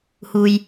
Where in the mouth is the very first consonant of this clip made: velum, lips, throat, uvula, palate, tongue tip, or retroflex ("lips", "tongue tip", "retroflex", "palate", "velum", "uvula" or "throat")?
throat